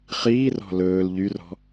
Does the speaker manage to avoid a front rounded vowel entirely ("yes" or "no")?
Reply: no